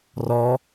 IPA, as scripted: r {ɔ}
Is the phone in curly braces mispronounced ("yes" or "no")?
no